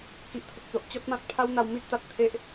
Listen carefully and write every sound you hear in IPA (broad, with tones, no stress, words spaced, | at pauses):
ki˨ʔt̪ʰə˨k̚t͡so˨ʔ t͡ɕɔ˦t̚mã˦t̚ pʰa˦wn̪a˧w mi˦t̚t̪a˨t̚ t̪ʰe˦ʔ